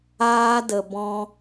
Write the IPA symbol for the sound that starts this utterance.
aː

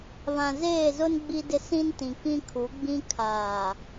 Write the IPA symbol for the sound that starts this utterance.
β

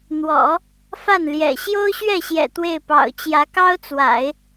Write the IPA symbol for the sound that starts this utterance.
n̪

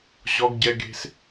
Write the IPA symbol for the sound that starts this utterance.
ʑ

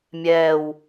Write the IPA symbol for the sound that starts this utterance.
mʲ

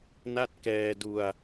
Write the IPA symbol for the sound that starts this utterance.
n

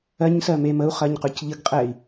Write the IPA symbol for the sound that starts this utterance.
ɜ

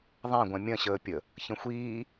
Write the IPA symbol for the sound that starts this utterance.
ðˤ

